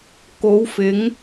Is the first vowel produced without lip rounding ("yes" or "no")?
no